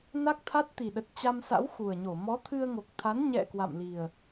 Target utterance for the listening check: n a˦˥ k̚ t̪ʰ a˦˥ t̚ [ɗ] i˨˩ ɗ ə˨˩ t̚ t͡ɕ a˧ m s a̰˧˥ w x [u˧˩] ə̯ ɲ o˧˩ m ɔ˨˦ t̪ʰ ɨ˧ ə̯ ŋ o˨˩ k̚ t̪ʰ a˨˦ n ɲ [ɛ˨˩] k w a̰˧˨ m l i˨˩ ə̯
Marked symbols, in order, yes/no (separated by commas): no, no, no